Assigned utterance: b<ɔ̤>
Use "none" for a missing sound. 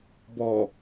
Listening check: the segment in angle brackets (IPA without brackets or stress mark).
ɔ